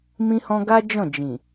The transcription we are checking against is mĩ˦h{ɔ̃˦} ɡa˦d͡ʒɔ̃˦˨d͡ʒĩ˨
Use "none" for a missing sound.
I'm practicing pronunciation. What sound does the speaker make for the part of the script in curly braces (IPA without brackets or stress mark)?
ɔ̃˦